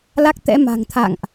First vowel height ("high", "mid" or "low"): low